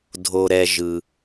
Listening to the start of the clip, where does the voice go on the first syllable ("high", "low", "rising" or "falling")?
low